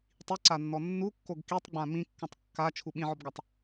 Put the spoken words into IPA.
tˤ i ǀ a nː ɔ nː u kː o ɡ k i tˤ ɡ͡b ã m ĩ kː ũ tˤ kː a t͡ʃʰ u ɓ ĩ ʕ ɔ b ɡ a tˤ

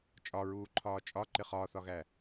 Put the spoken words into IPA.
t͡ʃʼ ɒ ɹ uː ǃʰ ɒː t͡ʃʼ ɒ ǃ ɪ χ ɒː θ ɒ ɣ æ

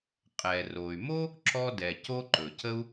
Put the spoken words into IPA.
qʼ ɛ˩ r o˩ y̯ m o˥ | ǁ ɔ˥ d ɛ˩ c o˥ ǃ ɵ˩ c ə˥ u̯

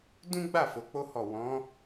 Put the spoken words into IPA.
d ũ˦ ɡ͡b a˦˨ f o˨˦ k͡p o˦ h ɔ˦˨ w ɔ̃˨˦

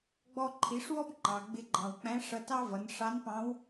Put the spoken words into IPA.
ɡ͡b ɔ˧ ǃʰ i˩˧ ʂ w ɔ˥ b ŋ͡ǃ ɑ˩ ɡ͡b ɪ˧ ɡ͡ǃ ɑ̃˩ w k͡p æ̃˧˥ ʂ ʌ˧ t ɑ˥ v ʌ˩˧ n ʂ ɑ˧˥ n p ɑ̃˧˥ w

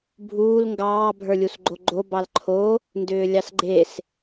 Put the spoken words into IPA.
bʱ uː l ŋ ɡ ɑː bʱ ə˞ lʲ u s ɡ͡ǃ o ɡ͡ǃ o b ɑ l ǃʰ o | n d ʏː lʲ ɑ s ɡ͡ǃ e s

